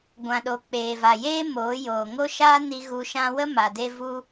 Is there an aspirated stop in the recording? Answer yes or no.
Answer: no